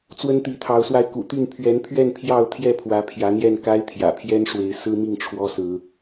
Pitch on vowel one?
high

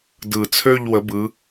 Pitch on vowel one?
low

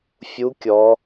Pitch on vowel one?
rising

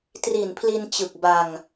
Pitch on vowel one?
low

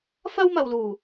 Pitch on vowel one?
high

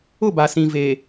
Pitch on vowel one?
falling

